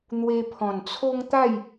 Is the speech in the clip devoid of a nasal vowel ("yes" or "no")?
no